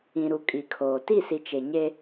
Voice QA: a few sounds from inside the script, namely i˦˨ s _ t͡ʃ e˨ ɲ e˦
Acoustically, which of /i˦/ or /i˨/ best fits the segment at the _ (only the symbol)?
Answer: i˨